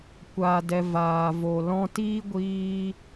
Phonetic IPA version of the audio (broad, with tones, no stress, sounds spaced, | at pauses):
kʷ a˨ d ɛ˧ v aː˨ v o˨ l ɔ̃˧ t iː˦ ɡʷ iː˧